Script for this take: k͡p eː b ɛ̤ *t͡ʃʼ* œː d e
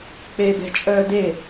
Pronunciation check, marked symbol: correct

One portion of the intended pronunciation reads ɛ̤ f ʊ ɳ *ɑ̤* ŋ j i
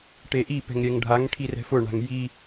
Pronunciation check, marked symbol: incorrect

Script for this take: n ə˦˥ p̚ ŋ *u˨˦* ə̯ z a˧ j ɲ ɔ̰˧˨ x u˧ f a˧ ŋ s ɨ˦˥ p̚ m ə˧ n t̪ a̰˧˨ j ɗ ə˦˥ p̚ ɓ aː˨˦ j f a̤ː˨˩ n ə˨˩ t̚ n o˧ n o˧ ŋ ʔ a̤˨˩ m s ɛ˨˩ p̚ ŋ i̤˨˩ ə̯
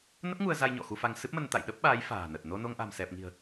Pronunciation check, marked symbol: incorrect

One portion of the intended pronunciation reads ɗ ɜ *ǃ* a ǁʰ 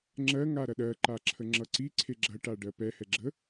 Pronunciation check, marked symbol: correct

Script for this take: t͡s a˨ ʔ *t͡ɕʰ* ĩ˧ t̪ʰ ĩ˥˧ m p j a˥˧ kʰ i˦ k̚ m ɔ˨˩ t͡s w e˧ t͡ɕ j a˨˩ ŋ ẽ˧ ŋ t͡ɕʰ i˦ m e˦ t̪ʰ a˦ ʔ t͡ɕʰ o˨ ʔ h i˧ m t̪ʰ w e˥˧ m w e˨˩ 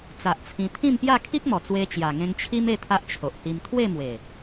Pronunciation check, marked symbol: incorrect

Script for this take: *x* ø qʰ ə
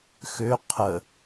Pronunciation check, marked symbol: correct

